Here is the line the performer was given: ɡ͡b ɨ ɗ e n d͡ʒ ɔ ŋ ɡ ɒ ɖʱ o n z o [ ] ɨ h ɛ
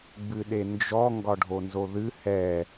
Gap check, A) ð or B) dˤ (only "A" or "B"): A